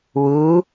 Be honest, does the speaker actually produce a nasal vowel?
no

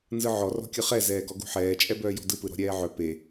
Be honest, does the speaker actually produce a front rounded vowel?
yes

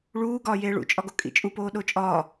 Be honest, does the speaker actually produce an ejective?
yes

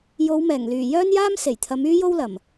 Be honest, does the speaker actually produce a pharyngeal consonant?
no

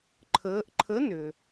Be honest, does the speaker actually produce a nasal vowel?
no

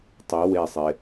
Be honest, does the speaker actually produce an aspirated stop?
no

